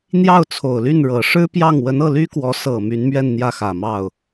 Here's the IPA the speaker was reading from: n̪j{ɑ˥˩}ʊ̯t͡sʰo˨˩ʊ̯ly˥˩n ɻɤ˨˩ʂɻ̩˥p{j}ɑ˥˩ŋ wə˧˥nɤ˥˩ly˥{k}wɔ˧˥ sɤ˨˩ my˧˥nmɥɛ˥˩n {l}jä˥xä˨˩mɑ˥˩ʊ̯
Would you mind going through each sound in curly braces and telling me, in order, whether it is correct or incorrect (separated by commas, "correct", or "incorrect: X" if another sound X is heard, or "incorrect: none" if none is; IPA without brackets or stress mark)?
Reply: correct, correct, correct, incorrect: n̪